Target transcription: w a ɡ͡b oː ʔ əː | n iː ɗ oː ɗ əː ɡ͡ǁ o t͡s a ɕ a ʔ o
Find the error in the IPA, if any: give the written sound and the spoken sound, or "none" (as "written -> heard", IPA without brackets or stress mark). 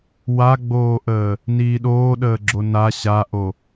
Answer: t͡s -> n